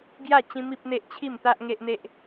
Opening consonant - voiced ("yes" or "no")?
yes